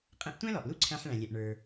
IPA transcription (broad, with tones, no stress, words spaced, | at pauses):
qʼɛ̃˧ʔtʷæ̃˥lɔ˩ʔ lu˥ǀʰæ̃˧ħɭæ̃˩lʲɛ˩ʔ ɳə˞˩